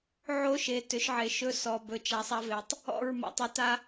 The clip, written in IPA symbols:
ʕ o˦ ʃ e˨ t ʏ˨˦ ʃ ʕ e˨ ʃ ɵ˦ s ɔ˨ b ɵ˨ t͡ʃ a˨ sˤ a˦ v e˨ tˤ | ɔ̰˦˨ ɹ m a̰˨ tˤ e˨ t a˦

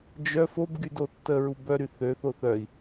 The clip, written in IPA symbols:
d͡ʒ œ f o b ɡ y d o tː ə ɹ u b œ ɾ y θ ø θ o θ œ i̯

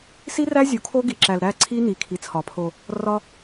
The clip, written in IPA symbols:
s i˦ r æ˦ zʲ u˨ kʰ o˦ ɡ i˨ ǁ æ˨ l ɾ æ˦˨ ǀʰ i˦ n i˨ kʰ i˨ t͡sʰ ɒ˨ pʰ o˨ | r ɒ˦

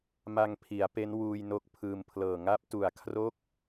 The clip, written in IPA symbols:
m a˧ ŋ pʰ i˩˦ a̯ p e˦˥ n w uː˧ j n o˦˥ k̚ pʰ ɯː˧ m pʰ l ɤː˨˩ ŋ a˦˥ p̚ t u˨˩ a̯ kʰ r o˥˩ k̚

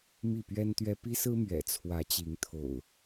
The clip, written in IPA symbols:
m i˥˨ p ɥ ɛ˦ n t̪ ɥ ɛ˦ p i˦ s ɹ̩˦ m ɥ ɛ̰˨˩ t͡sʰ w ä˨˦ t͡ɕ i˨˦ ŋ t̪ʰ o̰˨˩ ʊ̯

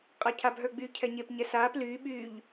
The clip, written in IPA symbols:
qʼ a cʰ a b ɦ ə˞ ɡ͡b yː cʰ ɛ ɲ e p ɲ ɛ s aː p l yː ɓ yː ʎ

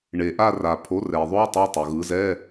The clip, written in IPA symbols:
ɳ e˩ ʔ a˦˨ r a˩ pʰ o˩˥ r ɛ˩ ðˤ o˧˥˧ tˤ e˧˥˧ tˤ o˩ ɣ ɯ˩˥ z ɛ˧˥˧

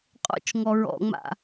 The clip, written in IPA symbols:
qʼ o̰ t͡ʃ ŋ ɔ ɹ ɔ̰ ŋ͡m a̰

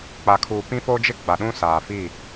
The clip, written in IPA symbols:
k͡p a˨ kʰ uː˨ p ĩ˦ f o˦ d͡ʒ ɪ˦ ɡ͡b a˨ ɗ ũ˦ s aː˨ f i˦˨

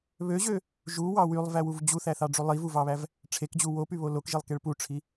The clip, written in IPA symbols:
β ø ʑ ø | ʒ u w ɑ w y lˠ v æ w u v d͡ʑ u θ æ θ ɑ ɖ͡ʐ u lˠ i v u v ɑ β æ v | ʈ͡ʂʰ e k d͡ʑ u w o p y β o l o k ʒ i lˠ k e ɭ p u ʈ͡ʂʰ i

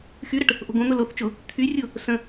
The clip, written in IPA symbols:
x y ɾ ə ʈ | ʔ o̤ ɡ õ n̪ ʊ l o θ t͡ʃ ʊ | t̪ʰ y rʲ ʊ | s ə̃

